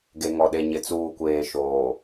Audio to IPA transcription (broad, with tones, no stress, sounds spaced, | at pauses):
ɡ e˨ ŋ ɔ˨ ɗ e˨ ɲ ɪ˨ t͡s uː˨ kʷ eː˨ ʃ oː˨